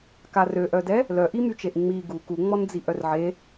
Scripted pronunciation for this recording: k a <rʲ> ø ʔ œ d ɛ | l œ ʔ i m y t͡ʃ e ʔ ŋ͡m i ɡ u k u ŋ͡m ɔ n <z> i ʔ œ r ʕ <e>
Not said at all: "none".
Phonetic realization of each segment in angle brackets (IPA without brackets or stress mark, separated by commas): r, d͡z, e